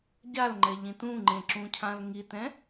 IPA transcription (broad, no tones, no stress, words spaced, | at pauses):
ɟalŋ͡ǃɛʎĩt ũŋ͡ǃẽǁũcʰãl ŋitɛ̃